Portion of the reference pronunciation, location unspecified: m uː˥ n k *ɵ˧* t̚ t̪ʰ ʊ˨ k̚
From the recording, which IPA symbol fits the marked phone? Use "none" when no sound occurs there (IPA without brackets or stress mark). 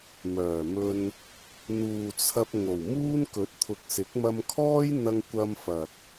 ɵ˨˥